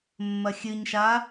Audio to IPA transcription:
mːɐxʲɨɲʃa

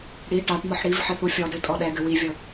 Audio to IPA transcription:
ɽi ʈaʈmɔħ ɽiv ħɘθufʲɔdɘ tʼɔɗɛɡɘ wivʲɤ

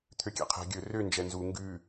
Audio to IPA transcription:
t̪ʰøkʲæ̰qʰɛ̤ ɡʲɵ rø nd͡ʒɛnzu ŋɡʉ

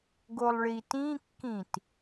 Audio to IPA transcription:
ɡolˠɭitĩkːĩt

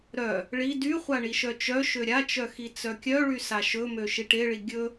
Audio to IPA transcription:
ɾœ | ɭi dyχʷa ɳiʃœt͡ʃœʃø ɾʲat͡ʃœ xit͡sœkʲœɭy saʃɵmø ʃiʈeɭi ɡʲɵ

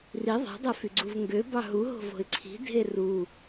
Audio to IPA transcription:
ri ðˤæ̤dˤæfyɡ͡ǀuv ŋɡøbɑ ɦuɦo̤vo̤ɪ̯ ǀʰi̤dʱe ru

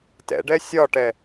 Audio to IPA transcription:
tɛ̰ɖɛ sʲɒʈɛ

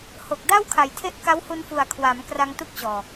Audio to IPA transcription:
ho˨˩k̚da˥˩wkʰa˨˩jtʰe˦˥ʔ ka˦˥whu˧nfu˨˩a̯kʰwa˩˦m kra˧ŋtu˦˥k̚t͡ɕɔː˨˩

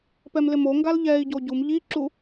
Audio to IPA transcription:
pɛmlɪmoŋɡal ʎɛi̯ɟo ɟum ʎiǁu

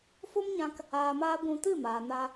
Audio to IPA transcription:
fo˦mɲã˧k | aː˧maː˦ ɡʷũ˧tɨ˦˨maː˨ na˧

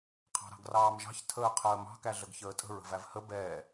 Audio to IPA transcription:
qʰɑ̤ɾɑ̤ɡrɑːmʒɑ̤ç tʰəːqʰəːmɑ̤ kæɮəɡçəːtʼə̤ ɹə̤vævhə bɛː

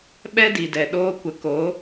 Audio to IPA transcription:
ɓɛ˦di˨dɛ˨ ɗoː˧kʷə˨˦ko˨˦

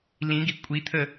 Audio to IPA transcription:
lĩɡi kʷʼit̪ʰə

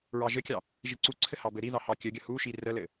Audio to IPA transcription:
ɹɑʒɘkʲɑ | ʒiǀuǀʰɘ hɑbɘɾiðɑ hɑkʲɘɡʲə huʃi rəlɘ

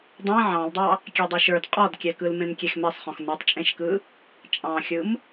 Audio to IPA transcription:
dˤɛ̃ ʕɑ̃ldˤɑ | kʲedˤoʃə˞d qʼɔdkʲɛkɯl mẽmkʲexmɛsˤχɔ̃x nə˞tˤt͡ʃʼẽʃkɯ | t͡ʃʼɑ̃xʲɯm

